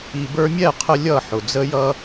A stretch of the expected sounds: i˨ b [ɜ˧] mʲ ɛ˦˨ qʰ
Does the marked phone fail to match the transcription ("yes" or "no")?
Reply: yes